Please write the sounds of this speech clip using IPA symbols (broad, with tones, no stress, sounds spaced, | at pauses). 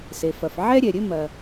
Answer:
s e˩ f ɐ˩ f ʕ ɛ˥ ɾʲ ɛ˩ ɾʲ ɘ˥ m ɐ˩